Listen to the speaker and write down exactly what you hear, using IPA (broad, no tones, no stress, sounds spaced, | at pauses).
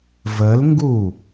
v ə l ŋ ɡ u